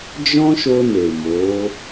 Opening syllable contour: high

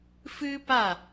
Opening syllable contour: high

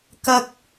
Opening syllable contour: high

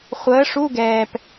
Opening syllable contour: rising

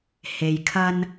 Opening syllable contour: low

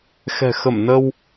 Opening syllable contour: low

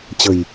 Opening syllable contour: low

